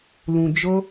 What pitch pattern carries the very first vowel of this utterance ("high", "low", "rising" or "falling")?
low